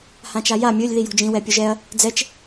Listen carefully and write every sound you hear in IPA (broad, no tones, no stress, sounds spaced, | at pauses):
h ã t͡ʃ a j a mʲ ɵ lʲ ð i j o̤ d͡ʒ ĩ w ɛ pʲ ɵ ʒ ɛ ɐ̯ | d͡z ɛ t͡ʃ